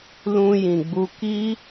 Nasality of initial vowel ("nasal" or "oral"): nasal